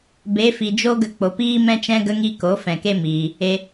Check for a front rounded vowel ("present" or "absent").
absent